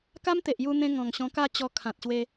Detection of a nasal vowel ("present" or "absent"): present